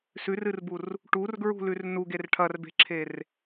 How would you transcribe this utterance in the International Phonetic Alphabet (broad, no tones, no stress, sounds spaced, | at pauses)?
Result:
s ʉ r ɨ r b u r | ʈ u r ɡ ɹ ṳ l ʉ r n u ɡ e r ʈʰ ɐ r b e̤ ǁʰ e r